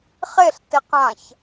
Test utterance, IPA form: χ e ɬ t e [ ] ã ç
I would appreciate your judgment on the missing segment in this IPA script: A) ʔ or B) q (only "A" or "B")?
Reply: B